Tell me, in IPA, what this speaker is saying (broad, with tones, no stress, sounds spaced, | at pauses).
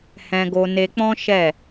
h ɛ̃˧ ɡ o˧ n e˧ k͡p ɔ̃˦ ʃ ɛ˦˨